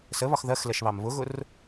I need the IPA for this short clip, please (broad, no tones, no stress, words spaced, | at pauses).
səβɒx ðɜxlɛʃβɑm βʊɣʊr